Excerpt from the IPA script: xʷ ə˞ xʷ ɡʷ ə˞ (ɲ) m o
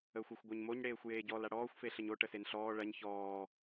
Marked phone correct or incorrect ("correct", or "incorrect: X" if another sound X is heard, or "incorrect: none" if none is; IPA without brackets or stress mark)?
correct